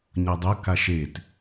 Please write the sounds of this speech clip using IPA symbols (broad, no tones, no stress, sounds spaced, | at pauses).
ɲ ʌ dˤ o k a ʃ e t